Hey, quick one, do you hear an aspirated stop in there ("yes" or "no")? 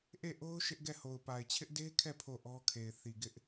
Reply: yes